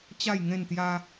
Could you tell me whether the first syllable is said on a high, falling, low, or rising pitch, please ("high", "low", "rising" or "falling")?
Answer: falling